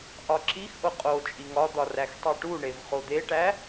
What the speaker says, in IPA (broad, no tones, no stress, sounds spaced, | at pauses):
ʔ ɒ ǁ i x ʔ o qʼ o t͡ʃʼ i ŋ ɒ d̪ ɒ r æ x tˤ i ʈ u ɳ e v χ o d̪ e ʈ æ